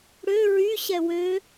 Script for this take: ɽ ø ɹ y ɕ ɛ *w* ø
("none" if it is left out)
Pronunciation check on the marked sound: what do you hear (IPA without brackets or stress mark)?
w